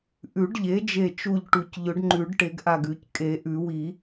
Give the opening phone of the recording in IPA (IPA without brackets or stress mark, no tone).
ʔ